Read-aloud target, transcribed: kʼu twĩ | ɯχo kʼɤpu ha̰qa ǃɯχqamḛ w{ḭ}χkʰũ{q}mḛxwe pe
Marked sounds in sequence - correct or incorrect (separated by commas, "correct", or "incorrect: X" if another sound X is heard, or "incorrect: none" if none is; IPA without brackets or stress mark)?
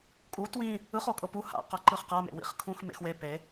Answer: correct, incorrect: x